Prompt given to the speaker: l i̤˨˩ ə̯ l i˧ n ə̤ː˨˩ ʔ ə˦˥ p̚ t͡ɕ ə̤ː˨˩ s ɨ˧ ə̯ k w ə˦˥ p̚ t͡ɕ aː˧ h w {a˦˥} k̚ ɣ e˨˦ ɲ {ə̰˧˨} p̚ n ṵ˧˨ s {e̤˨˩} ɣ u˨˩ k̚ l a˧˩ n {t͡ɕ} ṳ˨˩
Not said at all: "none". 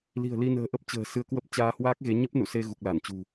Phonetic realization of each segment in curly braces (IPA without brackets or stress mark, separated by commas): aː˦˥, ə˦˥, e˧, t͡ɕ